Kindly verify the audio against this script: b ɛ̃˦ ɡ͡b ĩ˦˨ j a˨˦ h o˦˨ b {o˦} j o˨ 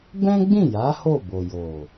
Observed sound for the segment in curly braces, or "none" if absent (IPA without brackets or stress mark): o˨